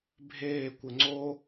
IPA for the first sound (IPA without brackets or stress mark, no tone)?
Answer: bʱ